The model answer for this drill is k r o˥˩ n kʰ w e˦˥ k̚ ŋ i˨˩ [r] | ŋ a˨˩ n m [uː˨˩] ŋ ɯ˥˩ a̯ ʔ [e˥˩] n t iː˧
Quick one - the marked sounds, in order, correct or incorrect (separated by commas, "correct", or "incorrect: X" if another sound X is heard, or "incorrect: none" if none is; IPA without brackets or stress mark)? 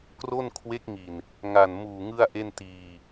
incorrect: n, correct, correct